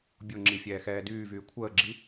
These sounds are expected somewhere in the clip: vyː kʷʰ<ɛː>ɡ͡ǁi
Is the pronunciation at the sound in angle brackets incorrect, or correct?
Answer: incorrect